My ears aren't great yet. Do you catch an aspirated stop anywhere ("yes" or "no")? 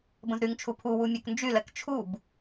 yes